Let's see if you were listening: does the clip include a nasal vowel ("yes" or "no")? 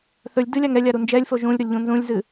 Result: yes